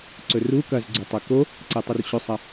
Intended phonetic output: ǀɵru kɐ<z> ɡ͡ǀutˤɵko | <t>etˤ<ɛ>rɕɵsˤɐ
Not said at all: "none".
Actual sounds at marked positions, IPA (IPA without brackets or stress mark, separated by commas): z, ǀ, ɨ